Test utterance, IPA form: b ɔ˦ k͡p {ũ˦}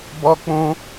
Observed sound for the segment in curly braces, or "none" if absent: ũ˦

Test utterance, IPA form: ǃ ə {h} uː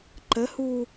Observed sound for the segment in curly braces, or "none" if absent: h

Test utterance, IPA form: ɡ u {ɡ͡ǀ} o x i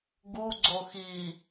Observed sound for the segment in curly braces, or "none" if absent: ɡ͡ǀ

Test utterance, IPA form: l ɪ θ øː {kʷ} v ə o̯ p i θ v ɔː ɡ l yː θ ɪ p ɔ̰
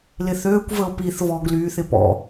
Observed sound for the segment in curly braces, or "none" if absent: kʷ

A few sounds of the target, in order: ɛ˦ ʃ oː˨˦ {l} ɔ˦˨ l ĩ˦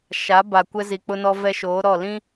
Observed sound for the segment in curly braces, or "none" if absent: ɾ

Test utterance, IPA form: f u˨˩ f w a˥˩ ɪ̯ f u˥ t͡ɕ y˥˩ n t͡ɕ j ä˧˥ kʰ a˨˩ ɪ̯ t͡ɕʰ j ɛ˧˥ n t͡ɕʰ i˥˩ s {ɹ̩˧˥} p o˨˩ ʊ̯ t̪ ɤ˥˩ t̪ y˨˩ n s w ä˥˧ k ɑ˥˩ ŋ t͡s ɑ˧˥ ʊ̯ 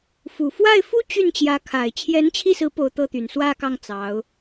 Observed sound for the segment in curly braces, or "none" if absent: ɹ̩˧˥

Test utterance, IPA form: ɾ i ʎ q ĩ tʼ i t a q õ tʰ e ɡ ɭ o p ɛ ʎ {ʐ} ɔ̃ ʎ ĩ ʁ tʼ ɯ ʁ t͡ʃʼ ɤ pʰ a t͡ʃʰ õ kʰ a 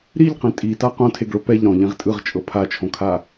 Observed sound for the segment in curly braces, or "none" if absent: ɾ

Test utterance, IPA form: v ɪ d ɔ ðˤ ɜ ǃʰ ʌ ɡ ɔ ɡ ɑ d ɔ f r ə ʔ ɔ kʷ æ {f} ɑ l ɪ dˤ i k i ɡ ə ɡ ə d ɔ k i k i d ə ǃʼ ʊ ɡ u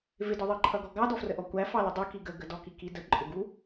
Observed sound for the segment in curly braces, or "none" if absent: f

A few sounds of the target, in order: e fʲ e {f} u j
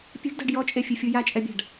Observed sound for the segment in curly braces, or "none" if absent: fʲ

